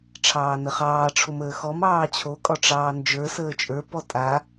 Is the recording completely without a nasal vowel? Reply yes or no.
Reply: yes